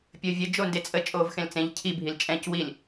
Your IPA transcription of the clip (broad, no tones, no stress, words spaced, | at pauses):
pʲəːvʲə d͡ʒondet͡sʼə t͡ʃʼoːvxẽlt͡sẽʎ cʰi bʱilt͡ʃʼɛ̃c wil